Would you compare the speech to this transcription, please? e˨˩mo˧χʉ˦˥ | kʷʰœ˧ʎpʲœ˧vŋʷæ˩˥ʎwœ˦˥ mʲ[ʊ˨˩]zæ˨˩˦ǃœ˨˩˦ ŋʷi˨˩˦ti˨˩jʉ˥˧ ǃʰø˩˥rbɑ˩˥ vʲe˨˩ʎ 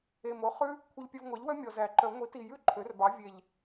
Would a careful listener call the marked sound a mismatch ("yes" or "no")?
yes